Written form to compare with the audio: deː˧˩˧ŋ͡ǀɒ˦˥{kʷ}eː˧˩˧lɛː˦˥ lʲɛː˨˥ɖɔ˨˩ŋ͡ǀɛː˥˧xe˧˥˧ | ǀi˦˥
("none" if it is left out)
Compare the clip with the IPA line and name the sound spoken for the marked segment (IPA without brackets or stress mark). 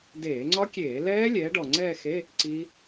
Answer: kʲ